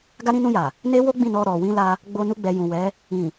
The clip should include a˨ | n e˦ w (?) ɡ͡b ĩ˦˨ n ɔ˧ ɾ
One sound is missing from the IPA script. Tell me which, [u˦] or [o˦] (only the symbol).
o˦